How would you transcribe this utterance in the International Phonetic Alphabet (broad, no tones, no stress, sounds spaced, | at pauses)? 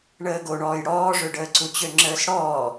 ɳ əː ɡ o ɳ ɔː j ɽ ɔː ʐ ø ɖ əː ǀ u t͡ɕ ø ŋ͡ǁ əː s ɽ ɔː